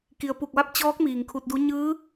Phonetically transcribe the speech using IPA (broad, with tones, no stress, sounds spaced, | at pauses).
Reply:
k i˩ ə̯ p u˧˩ k̚ ʋ a˥˨ p̚ t͡ɕ ɔː˧˥ k̚ m iː˩ ŋ kʰ u˧ t̚ d u˧˥ ɲ ɯː˧˥